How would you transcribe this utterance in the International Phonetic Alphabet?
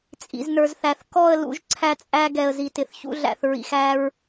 t͡sʼ ḭ˨ z n ə˞˨ z θ æ˨ θ k ɔ˦˨ ə̯ l ṵ˦ ʒ ǀʰ æ˦ t͡sʼ æ˦ ɡ ɛ˨ ə̯ z i˨ t ɪ˨ θ ç ṵ˦ ɮ æ̰˨ θ ɹ ḭ˨ x æ˦ ɹ

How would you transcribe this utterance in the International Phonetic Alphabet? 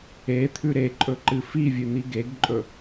e t̪ʰ ʉ ɾ e ǃʼ ɵ ǃ ɨ f i vʲ ʉ n̪ i ɡ e ɡ ǃʼ ɵ

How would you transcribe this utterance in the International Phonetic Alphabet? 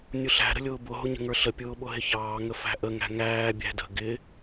nʲ ʊ ɬ æ̤ ɾ ə̤ lʲ ʊː b ʊ ɦ ʊ ɲ ə̤ ŋ ə˞ ɬ ə pʲ ʊː ɓ ʊ ɦ ɪ ç ɑː ŋ ə f æ̤ ʔ ə ŋ æ̤ ŋ æː bʲ æ̤ d ə̤ ɡ ɪ

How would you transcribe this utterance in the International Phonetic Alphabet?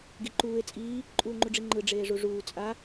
ɡ i ǃ uː e̯ t͡sʼ iː | ǃʼ uː ŋ͡ǃ u ɖ͡ʐ i ŋ͡ǃ ɯ ɖ͡ʐ eː ʐ u ʐ uː t͡sʼ a

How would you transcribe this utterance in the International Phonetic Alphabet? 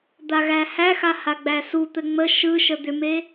d̪ a ɣ æ h æ x a h a ɡ͡b æ s u t̪ ɘ ŋ͡m ə ʃ ɯ ʃ ə d̪ ʏ m e

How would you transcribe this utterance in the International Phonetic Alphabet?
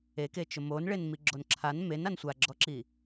e k e t͡ʃ ʊ m o n ɭ e n m i ɡ͡ǁ o n ǁʰ a n m e n a n sʷ a ɡ͡ǁ ɔ ǁ i

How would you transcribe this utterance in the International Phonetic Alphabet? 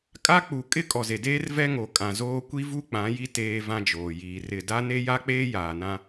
kʼ a˦ k͡p u˨ kʼ ɪ˦ kʼ ɔ˨ z e˨ d eː˦ r v ɛ˦ ŋ o˨ kʼ ã˨ z oː˦ kʷ i˦ v u˦ k͡p ã˨˦ j i˦ t eː˦ v ã˦ d͡ʒ oː˨ j iː˨ r ɪ˦˨ d a˦ n e˦ j a˦ k͡p eː˦ j aː˨ n ã˦

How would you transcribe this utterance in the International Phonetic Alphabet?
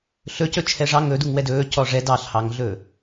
ɬ ɵ c ɵ t͡ʃʰ ɛ ʐ ɑ ŋ ɵ d u ŋ w ɛ d ɵː c ɔ ʐ ɛ d ɑ ɬ h ɑ ŋ ɮ ɵː

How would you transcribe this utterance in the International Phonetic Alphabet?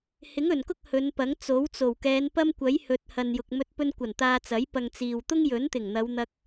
h ɪ˨˥ ŋ ɵ˨˩ n k ʊ˥ k̚ h ɵ˨˧ n p ɐ˨˥ ŋ t͡s o˨˥ w t͡s o˨˩ w k ɛː˨˧ n p ɐ˥ m kʷ ɐ˨˥ j h ɵ˨ t̚ h ɐ˨ n j ʊ˨ k̚ m ɵ˧ t̚ p ɵ˧ n kʷ ɐ˨˩ n t̪ aː˧ t͡s ɐ˨˥ j p ɐ˨ ŋ t͡s iː˨ w t̪ ʊ˥ ŋ j ɵ˨˥ n t̪ ɪ˨˩ ŋ n̪ ɐ˨˧ w n̪ ɐ˧ k̚

